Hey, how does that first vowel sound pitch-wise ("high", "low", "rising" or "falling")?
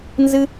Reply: high